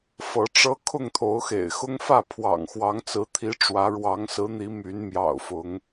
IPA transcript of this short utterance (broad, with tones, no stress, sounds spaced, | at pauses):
f ɤ˨˦ ʈ͡ʂ ɤ˦ kʰ ʊ˥˨ ŋ t̪ʰ o˨˦ ʊ̯ x ḛ˨˩ ɪ̯ x ʊ˦ ŋ f ä˥˨ pʰ w ɑ̰˨˩ ŋ x w ɑ˨˦ ŋ t͡s ɹ̩˨˦ t̪ʰ i˨˦ ʈ͡ʂ w ä˨˦ ɻ w ɑ˨˦ ŋ s ɹ̩˨˦ n̪ i˨˦ m y˨˦ n m j ɑ̰˨˩ ʊ̯ f ʊ˨˦ ŋ